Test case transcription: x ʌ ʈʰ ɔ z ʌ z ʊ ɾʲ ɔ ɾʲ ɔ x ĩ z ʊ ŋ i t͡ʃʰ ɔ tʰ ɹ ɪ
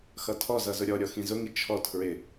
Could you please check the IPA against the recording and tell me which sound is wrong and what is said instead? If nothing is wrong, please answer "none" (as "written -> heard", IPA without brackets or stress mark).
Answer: ʈʰ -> tʰ